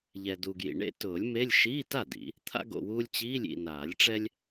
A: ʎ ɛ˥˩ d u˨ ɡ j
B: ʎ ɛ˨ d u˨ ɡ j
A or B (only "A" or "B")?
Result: B